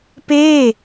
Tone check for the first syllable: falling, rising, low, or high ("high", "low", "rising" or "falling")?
falling